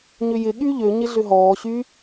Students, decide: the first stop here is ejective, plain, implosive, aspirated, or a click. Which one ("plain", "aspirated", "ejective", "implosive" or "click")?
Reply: implosive